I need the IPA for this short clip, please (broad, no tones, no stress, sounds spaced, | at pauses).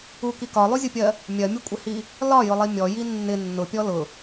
u k i k ɒ lˠ u zʲ ʊ pʲ ɜ | mʲ ɜ mʲ u kʷʼ ɪ h i | l ɒ j ʊ lˠ i mʲ ɔ j i nː ɪ nː ʊ pʲ ɔ l ʊ